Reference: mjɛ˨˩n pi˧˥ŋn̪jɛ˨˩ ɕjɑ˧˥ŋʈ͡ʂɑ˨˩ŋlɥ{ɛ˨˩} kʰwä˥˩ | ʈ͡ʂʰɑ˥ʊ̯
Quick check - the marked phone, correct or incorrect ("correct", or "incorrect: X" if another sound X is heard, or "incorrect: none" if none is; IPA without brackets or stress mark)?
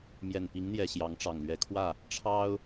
incorrect: ɛ˧˥